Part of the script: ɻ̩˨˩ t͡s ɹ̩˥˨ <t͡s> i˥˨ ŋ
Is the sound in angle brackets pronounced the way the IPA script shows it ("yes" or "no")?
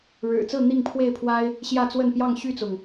no